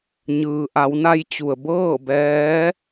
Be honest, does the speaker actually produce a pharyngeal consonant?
no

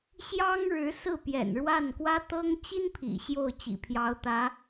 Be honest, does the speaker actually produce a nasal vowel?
no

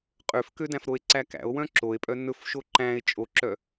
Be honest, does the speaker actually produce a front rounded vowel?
yes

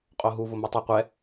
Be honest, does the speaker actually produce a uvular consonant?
yes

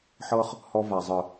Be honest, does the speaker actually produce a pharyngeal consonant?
yes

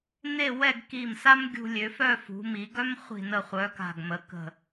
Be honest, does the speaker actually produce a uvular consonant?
yes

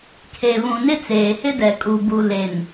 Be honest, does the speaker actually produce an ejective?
yes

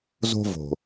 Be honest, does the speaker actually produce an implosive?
no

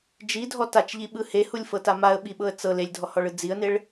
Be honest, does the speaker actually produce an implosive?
yes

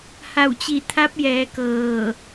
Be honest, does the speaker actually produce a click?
no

